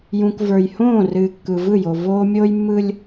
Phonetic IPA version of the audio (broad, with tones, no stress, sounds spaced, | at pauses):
j ũ˨ k v ə˞˨ j h õː˦˨ r ɨː˨ kː ɯ˨ v ɯ˦˨ j o˨ v oː˦ mʲ oː˦ j mː ɯ˦ lʲ